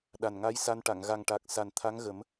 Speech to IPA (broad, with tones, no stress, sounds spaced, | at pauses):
ɗ a˨˩ n ŋ a˧˥ j s a˧ n ʈ a˨˩˨ ŋ ɣ a˨˩ ŋ ʈ a˨˩ k̚ s a˨˩ n t̪ʰ a˧˥ ŋ ɣ ə˨˩˦ m